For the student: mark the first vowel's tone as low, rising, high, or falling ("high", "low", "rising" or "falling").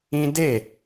high